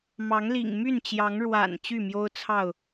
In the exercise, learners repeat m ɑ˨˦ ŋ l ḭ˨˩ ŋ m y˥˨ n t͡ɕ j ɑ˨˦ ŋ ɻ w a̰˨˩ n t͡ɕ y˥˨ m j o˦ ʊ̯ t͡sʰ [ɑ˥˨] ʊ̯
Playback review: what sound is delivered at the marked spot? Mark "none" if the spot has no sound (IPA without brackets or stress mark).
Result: ɑ˥˨